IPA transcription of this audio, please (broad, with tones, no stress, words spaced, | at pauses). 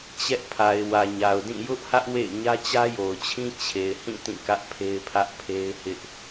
t͡ɕɛ˦ʔ pʰa˨ɪ̯wä˨ɲa˨ʊ̯dĩ˦˨ jʊ˦ʔhä˦ʔ wḛ˦˨ɪ̯ ɲä˦t͡ɕä˦jo˨ʊ̯t͡ɕʰĩ˦ t͡ɕʰe˨ɪ̯hĩ˦˨ tĩ˦˨kä˦ʔ pʰe˦ɪ̯pʰä˦ʔ pʰe˦ɪ̯hɪ˦ʔ